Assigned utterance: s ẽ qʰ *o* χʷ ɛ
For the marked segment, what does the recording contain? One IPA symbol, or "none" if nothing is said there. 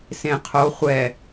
o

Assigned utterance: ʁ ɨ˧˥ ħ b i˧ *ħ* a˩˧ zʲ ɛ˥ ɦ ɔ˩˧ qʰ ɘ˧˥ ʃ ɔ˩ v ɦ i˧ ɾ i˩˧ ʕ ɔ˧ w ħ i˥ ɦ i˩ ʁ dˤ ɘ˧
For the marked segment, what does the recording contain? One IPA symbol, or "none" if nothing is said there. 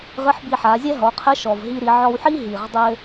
ħ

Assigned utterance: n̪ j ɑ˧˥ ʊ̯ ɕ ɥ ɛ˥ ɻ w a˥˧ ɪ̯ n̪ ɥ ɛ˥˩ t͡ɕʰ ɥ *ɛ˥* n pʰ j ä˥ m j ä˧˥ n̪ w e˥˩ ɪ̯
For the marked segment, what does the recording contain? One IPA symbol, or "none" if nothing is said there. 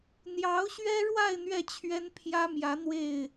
ɛ˥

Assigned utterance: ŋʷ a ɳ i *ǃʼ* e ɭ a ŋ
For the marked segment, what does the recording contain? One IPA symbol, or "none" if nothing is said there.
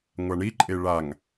ǃʼ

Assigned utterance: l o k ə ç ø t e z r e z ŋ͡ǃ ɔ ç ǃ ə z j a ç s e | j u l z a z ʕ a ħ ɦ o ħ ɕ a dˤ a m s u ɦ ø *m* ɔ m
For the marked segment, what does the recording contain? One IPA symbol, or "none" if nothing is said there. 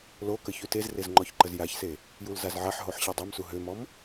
m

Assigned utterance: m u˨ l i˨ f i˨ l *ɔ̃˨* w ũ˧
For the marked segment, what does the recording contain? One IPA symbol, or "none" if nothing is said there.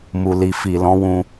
ɔ̃˨˦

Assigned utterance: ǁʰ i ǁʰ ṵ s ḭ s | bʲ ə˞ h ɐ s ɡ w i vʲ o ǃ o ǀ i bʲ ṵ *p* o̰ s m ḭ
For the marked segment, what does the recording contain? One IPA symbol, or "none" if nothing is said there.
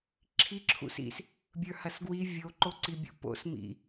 p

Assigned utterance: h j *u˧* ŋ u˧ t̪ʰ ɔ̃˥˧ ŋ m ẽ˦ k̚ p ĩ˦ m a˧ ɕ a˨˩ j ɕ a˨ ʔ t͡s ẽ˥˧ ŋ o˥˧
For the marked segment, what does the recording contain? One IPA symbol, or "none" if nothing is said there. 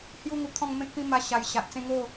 u˦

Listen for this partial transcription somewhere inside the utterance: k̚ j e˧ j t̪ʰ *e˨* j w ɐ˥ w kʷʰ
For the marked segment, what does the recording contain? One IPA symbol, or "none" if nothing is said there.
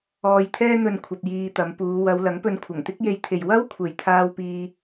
e˨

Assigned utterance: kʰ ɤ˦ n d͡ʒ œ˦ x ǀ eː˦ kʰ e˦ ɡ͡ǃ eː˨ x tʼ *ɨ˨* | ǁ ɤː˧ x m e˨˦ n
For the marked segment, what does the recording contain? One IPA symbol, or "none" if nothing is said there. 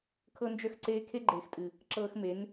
ɨ˨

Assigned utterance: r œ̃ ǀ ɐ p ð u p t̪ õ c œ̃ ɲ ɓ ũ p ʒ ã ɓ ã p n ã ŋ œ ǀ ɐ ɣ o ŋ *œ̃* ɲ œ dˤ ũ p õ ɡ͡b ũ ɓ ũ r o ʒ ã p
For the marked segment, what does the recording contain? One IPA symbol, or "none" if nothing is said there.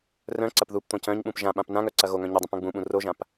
œ̃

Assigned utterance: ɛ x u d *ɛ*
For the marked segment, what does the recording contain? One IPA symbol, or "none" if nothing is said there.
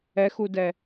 ɛ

